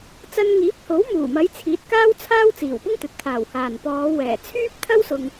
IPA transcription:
t͡sɐ˧nŋiː˨˥p̚ho˨˥w muː˨˩mɐ˨˧j t͡sʰiː˨˥t̚kaː˥wt͡sʰaː˥w t͡siː˨˩wpʊ˥ŋt̪ɵ˨t̚ t̪ʰaː˨˩whaː˨˩npɔː˨˧ wɛː˨˩ t͡sʰyː˥p̚t̪ʰɐ˥wsʊ˨ŋ

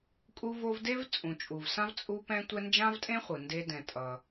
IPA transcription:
kʼu˦vo˦vde˥v t͡sʼũ˨t͡ʃʼu˨vsã˥v t͡sʼu˦pɛ̃˦ tʷɛ˦nd͡ʒã˥vtʼẽ˥χʷɯ˩ nde˦dɛ̃˨tʼʌ˨

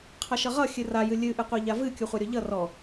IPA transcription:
qʰʌʃʌʁʌ xʲɨra jɨlʲɨ ʔɨqʷɛʎavɨ kʲuχʷaɾʲɔʎʌ rɔ

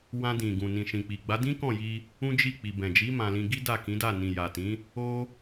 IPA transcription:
wã˧dĩ˨ ɡũ˨nĩ˨ʃĩ˨k͡pi˨ ɡ͡ba˨˦dĩ˦kɔ̃˦˨ji˧ | ũ˦d͡ʒi˦˨ k͡pi˨bɛ̃˨d͡ʒi˨˦ mã˧lĩ˧ ɡi˦da˦˨kĩ˨˦da˦˨ nĩ˨ja˨tĩ˨˦ | o˦

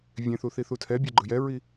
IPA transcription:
vʲẽθuθi θutʰɛ bʲeɡ͡ǃɯjɛɹi

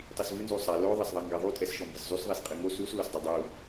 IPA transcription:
tˤisvɨ nzusˤa lo ðˤɐsðˤɐŋɡɐðˤu tʼɛsʃɔmbɨszˤus ðˤisqʼɨŋo sus losdˤɐdˤu

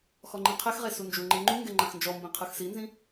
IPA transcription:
xɔŋ͡ǃĩqʰɛxʁe sund͡ʒuŋ͡ǃe ŋ͡ǃuŋɡɛ ŋ͡ǃãxnd͡ʒɔmbĩ qʰɯxsinzĩ

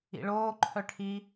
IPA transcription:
ḭɭoːǃʰœ ʈʰi

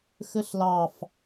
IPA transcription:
xɘɬlɑf

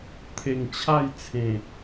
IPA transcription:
t̪ʰe˨˩ŋ t͡ɕʰa˥˧jt͡sʰẽ˨˩

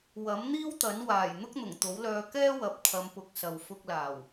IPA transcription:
wɐ˨˥mn̪iː˥wt̪ɐ˨˥n waː˨˩j n̪ʊ˥k̚n̪ʊ˨˩ŋt̪o˨˥wlœː˧ kɛː˥wɐ˨p̚ t̪ʰɐ˨˧mpʊ˨k̚sɐ˨w fʊ˧k̚laː˨˩w

